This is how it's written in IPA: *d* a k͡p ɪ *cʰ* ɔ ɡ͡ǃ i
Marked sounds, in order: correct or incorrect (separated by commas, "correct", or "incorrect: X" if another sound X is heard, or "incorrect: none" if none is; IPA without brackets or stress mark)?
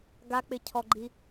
incorrect: ɡ, correct